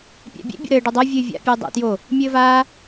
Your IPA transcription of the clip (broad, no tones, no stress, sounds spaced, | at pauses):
pʲ æ̰ bʲ ḛ bʲ o̰ ɾ ɘː ɖ o dˤ a vʲ ɨː vʲ a̰ pʲ ɨː dˤ æ̰ t j o | mʲ ɘː v aː